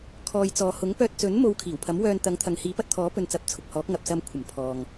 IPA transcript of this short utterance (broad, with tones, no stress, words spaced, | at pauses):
kʰɔː˨jt͡sɔː˨hʊ˨˥ŋ pœː˧t̚t͡sɵ˨˥nmo˨˧w kʰiː˨˩wpʰɐ˨˥m wœː˧nt̪ɐ˨˧ŋ t̪ʰɐ˨ŋhiː˨˥pɐ˧t̚t̪ʰɔː˨˥ pɵ˧nt͡sɐ˨˥p̚t͡sʰʊ˨k̚hɔː˨˥k̚ ŋɐ˨p̚sɐ˧mkʷʰɐ˨˩m pʰɔː˨ŋ